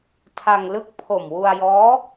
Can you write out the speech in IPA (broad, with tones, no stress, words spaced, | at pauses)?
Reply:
tʰa˧ŋlɯ˥˩k̚ pʰo˨˩mwu˧a̯jɔː˦˥